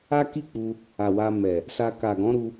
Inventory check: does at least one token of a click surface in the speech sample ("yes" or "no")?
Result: no